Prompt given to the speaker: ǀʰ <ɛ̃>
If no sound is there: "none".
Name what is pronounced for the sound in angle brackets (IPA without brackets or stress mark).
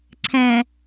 ɛ̃